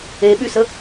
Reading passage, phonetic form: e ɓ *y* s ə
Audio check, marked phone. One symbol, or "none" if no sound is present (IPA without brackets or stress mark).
y